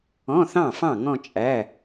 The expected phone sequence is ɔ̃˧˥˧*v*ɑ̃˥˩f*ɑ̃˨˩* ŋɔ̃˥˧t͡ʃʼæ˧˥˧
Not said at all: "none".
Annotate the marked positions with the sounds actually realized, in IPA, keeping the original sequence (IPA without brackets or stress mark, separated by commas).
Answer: θ, ɑ̃˥˩